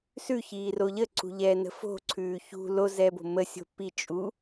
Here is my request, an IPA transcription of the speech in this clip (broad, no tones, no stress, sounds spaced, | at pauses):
s ʉ ç iː r o ʎ ə ǀ ṳ ʎ ɛː n ə̤ f o̤ ǀʰ ʉː ç ṳ l o z ɛː b o̤ m ə sʲ o̤ p i t͡ʃʼ u